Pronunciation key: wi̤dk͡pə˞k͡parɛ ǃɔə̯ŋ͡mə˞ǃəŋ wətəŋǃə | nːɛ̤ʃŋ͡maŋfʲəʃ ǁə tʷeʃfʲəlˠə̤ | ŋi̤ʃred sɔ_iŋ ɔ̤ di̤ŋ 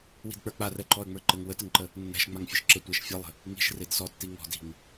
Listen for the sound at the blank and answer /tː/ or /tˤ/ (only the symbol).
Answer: tː